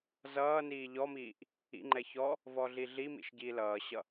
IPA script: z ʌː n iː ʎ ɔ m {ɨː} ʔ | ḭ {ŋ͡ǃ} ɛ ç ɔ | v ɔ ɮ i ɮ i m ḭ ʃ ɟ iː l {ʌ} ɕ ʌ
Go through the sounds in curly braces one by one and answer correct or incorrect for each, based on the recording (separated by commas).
incorrect, correct, incorrect